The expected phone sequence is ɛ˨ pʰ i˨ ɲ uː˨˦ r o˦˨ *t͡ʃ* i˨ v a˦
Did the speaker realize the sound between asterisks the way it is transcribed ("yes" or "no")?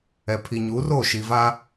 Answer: no